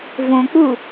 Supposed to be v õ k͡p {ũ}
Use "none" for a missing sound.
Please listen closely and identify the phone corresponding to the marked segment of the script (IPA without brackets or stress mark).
u